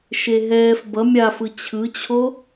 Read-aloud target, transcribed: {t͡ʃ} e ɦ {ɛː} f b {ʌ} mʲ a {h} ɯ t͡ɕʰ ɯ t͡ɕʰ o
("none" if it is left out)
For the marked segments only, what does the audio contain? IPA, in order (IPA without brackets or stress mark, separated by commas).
ʃ, ɛː, ʌ, f